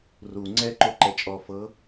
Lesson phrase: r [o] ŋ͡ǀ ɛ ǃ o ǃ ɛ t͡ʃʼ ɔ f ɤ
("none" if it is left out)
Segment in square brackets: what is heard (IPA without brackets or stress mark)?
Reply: u